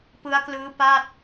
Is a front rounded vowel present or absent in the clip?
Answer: absent